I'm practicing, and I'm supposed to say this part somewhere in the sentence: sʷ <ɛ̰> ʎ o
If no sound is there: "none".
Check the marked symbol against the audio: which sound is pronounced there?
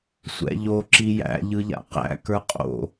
ɛ̰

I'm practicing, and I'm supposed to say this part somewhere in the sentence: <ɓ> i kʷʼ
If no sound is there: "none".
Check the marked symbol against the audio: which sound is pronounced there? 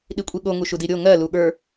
ɗ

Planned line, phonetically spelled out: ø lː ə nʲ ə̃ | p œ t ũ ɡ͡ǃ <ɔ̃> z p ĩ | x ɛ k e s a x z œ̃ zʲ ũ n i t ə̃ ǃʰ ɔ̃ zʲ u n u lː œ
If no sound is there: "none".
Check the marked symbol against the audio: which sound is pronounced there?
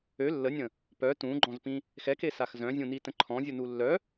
ɔ̃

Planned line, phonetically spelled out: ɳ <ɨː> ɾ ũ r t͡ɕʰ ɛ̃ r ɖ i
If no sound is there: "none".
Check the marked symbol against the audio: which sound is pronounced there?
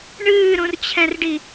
ɨː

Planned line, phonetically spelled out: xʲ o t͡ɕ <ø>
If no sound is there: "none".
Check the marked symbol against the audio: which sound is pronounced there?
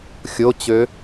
ø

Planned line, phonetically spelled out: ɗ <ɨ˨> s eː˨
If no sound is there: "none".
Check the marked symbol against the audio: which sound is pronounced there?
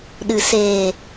ɨ˨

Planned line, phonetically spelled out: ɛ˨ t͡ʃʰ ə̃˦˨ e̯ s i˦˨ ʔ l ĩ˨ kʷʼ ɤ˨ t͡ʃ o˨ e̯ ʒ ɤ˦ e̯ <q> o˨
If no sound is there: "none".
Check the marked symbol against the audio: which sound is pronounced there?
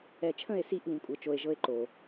ǃ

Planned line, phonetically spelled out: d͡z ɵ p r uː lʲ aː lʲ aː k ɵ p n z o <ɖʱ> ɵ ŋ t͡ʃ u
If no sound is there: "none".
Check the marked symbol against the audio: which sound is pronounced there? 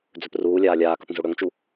ɽ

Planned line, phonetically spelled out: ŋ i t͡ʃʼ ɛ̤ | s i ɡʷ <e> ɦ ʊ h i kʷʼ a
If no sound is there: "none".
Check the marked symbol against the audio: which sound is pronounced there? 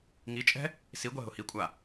ɛ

